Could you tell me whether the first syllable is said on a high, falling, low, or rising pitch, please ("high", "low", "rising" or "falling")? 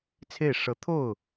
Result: falling